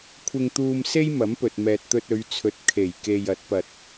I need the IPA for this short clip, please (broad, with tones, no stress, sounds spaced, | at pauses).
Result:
kʷʰ ɪ˧ ŋ t̪ uː˧ m s e˥ j m ɐ˨˥ m p ɵ˨ t̚ m ɛː˨ t̚ t̪ ɵ˧ t̚ ɵ˨˧ ɥ t͡sʰ ɵ˨˥ t̚ kʰ e˨˩ j k e˨ j ɐ˨˥ t̚ p ɐ˧ t̚